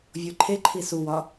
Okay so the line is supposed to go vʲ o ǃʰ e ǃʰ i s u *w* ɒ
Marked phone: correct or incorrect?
correct